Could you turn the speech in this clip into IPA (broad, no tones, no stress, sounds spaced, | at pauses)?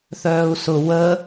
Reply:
θ œː u̯ s ʊ w ə